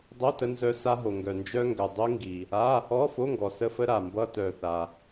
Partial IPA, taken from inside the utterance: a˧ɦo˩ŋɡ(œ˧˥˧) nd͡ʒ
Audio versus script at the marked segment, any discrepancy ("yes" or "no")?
yes